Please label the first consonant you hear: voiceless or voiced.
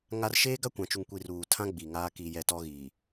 voiced